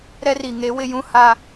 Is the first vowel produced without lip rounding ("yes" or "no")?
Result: yes